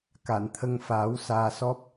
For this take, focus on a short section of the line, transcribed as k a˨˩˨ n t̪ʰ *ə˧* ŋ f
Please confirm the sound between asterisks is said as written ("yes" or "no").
yes